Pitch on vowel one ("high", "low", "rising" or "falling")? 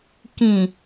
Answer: low